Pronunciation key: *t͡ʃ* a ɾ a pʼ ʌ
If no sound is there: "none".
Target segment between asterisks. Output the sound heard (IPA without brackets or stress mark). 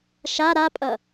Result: ʃ